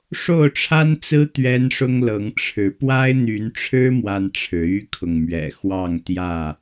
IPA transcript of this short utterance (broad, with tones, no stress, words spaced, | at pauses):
ʂo˥˨ʊ̯ʈ͡ʂʰa˦nt͡sɹ̩˦ t̪ɥɛ˦nʂʊ˦ŋlɤ˨˦ŋ ʈ͡ʂʰɻ̩˨˦ pwa˦ɪ̯n̪y˨˦nʈ͡ʂʰɻ̩˦ mwa˦nʈ͡ʂʰɻ̩˨˦ y˦kʰʊ˨ŋmɥɛ̰˨˩ xwɑ˥˨ŋt̪jä˥˨